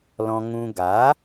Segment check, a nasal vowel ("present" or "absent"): present